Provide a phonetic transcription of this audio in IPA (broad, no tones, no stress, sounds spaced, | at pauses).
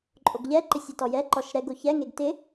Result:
ǃʼ o ɡ ʎ ɛ ǃ ɪ sʲ ɛ t ɔ j ɛ ǃ ɔ ʃ ɾ ɛ ɡ o ç ɛ ŋ e ɡ t ɪ